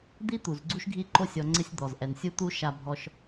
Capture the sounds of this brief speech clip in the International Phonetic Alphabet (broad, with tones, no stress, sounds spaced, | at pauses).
d̪ i˥ t̪ u˩ z ɡ͡ǀ u˥ ʃ ɡʱ i˦ ǃ o˦ sʲ ɔ˨ ŋ͡ǀ ɪ˦ sʲ d̪ ɔ˩ z ʔ ɛ˩ n sʲ u˦ t̪ u˦ ʃ a˨ bʱ ɔ˨ ʃ